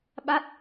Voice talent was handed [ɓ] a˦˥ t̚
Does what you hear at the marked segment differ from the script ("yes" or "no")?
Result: no